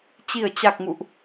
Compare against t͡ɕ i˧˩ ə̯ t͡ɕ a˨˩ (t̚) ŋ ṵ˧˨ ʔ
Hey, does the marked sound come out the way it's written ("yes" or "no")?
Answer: no